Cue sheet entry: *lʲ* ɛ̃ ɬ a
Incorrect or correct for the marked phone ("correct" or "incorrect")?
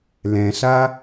incorrect